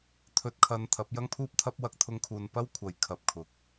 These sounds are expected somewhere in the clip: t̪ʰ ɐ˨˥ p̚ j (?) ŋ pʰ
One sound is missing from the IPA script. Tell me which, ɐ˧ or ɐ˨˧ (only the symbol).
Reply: ɐ˧